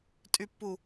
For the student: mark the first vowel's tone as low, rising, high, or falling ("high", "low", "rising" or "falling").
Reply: low